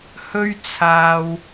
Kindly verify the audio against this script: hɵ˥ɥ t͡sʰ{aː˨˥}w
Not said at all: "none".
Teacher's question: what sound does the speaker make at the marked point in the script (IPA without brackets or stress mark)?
aː˧